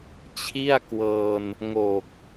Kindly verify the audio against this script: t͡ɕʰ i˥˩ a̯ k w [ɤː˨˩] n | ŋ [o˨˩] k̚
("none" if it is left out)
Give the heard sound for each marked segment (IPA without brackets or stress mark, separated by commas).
ɤː˧, o˨˩